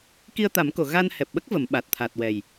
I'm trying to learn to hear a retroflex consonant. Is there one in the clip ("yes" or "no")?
no